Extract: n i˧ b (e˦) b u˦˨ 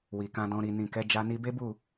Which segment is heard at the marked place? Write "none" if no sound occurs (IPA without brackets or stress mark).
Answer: e˦